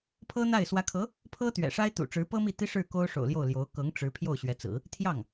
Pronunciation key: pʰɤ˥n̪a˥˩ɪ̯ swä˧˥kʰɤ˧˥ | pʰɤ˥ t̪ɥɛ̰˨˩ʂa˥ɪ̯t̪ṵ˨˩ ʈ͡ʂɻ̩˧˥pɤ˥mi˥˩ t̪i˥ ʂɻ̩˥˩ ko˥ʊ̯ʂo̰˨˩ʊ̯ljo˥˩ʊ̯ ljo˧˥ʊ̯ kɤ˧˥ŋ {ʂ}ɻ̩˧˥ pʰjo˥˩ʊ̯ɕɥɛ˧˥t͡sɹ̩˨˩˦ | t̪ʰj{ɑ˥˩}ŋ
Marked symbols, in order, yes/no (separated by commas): no, yes